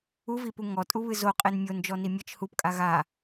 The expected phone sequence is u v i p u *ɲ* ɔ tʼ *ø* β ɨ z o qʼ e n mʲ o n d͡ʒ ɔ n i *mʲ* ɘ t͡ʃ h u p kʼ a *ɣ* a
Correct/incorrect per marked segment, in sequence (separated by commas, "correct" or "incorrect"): incorrect, incorrect, correct, correct